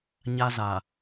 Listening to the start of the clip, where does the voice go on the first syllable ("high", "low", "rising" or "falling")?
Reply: high